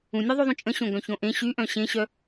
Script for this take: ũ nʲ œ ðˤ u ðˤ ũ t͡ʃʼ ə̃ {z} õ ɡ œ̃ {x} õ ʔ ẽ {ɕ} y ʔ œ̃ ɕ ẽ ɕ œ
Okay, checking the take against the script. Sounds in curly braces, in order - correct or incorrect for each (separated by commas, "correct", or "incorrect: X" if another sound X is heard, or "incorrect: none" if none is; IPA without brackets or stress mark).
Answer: incorrect: ɕ, incorrect: ç, correct